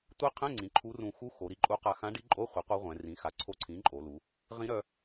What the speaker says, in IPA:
tʷi˧˥qʰɛ̃˧˥˧ŋ͡ǀĩ˩˧ ǃʰu˧˥rũ˧ xu˧˥ xo˩˧ɾi˧ǃʼu˧˥qa˧ xã˧˥ɖi˧˥ǃʼo˧˥˧χʷɛ˩˥ qʷa˧˥ʁʷɛ̃˩˧rĩ˩˥xa˩˥ ǀʰo˧˥ǀʰĩ˩˥ǃʼo˩˧lu˩˧ | ʁĩ˧˥ɾœ˧

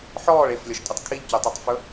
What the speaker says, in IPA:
ħɔːɭ eflʲɔʃtʼɵtˤ kʰiʎcøtˤitˤfɵ

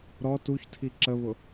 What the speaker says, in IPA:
ɾɔ tuçtʰi ǁəβʊ

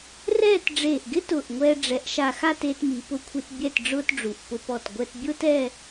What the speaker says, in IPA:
rɛː˥˧t ɖ͡ʐeː˧˩ʔɡɪ˥tʊː˧˩ʔŋʷɛː˧ ɖ͡ʐɛ˩˧ʔʃa˧˩xa˥˧t eː˧tmi˩˧pʊ˧˩kʷʰi˧t bʲɛ˥˧tɖ͡ʐʊː˥tɖ͡ʐu˧˩ʔ pʊ˧pɔ˧˩t ɡʷɛ˧tbʲʊː˥tɛ˥˧

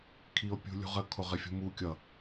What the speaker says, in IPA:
kʰio̯pʲṳlʲṳʁə kʰoʁɪfʲṳmu kʲʌ

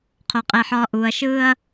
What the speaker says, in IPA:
qʰo˦qʼɛ˦ħɒː˦ ʔuː˨ɐ̯ʃɯː˦ɐ̯

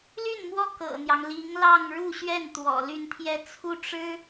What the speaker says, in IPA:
ly˥˩nmwɔ˥ kɤ̰˨˩n̪jɑ˦ŋ li˧˥ŋlɑ˥˧ŋ ɻu˥˧ɕɥɛ˥˩n t̪wɔ̰˨˩ ly˥˧nt̪ʰjɛ˥˧ t͡sʰu˥˩ ʈ͡ʂɻ̩˥

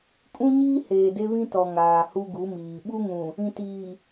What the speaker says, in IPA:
kʼũ˦ɲiː˦heː˨ de˦βĩ˦tɔ˨ ŋaː˨hu˦ɡu˨˦miː˨ ɓu˦ŋũ˨ | ĩ˨tiː˨

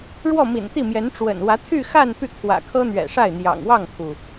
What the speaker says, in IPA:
ɻwɔ˥˩mḭ˨˩nt̪i˥˩mjɛ˧˥n ʈ͡ʂwə̰˨˩nwä˧˥t̪ʰy˥˧xa˥˧n py˥˩ kʰwä̰˨˩kʰɤ˥n̪ɥɛ̰˨˩ʂa˥˩ɪ̯ n̪jɑ̰˨˩ŋwɑ˥˩ŋt̪ʰu˩

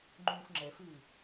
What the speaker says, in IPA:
ŋ͡ǃũːfŋ͡ǁɛfɨː

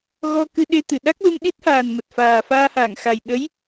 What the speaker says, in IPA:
ɣɔ˧kɨ˧ɗe˧t̪ɨ˧˩ ɗa˦˥k̚lu˧mɗi˦˥t̚haː˨˩n mə˨˩t̚faː˨˩ faː˧haː˧˩ŋxa˨˩j ɗə˨˦j

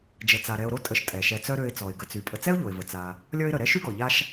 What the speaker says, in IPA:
d͡ʒə˨t͡sa˨ ɾɛ˨ʊ̯ɾo˦tʼə˨ʃ tʼɛ˩ʃɛ˨t͡sœ˦ ɾø˨ɪ̯ t͡sɔ˩ɪ̯ɡə˨t͡sy˩ pʼə˨t͡sɛ˥ʊ̯ʎo˩ɪ̯və˩ t͡sa˨ | lʲɔ˥ɪ̯ɾə˨ ɾɛ˥ʃy˥ɡɔ˩ʎa˦ʃ

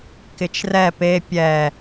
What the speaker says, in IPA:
kɪt͡ʃrɛ pe pʲɛ

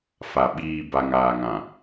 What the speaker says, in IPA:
fa˨ ɓiː˨ ba˨ŋaː˨ŋã˨

